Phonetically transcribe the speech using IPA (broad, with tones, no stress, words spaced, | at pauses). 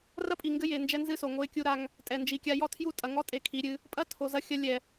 rɐ˦pʼi˨ŋɡɘ˦ je˨nd͡ʒɛ˦nzɨ˦ so˨ŋo˦ɪ̯kʲu˦ ɾa˦ŋ | tʼɛ˨nd͡ʒi˨kʲa˦ jɔ˦tʰju˦tʼɐ˨ ŋɔ˦tʼe˨ kʰi˨˦ɾʲɨ˦ | pʼɐ˦ tʰo˨zɐ˦xʲɐ˦ lʲɛ˨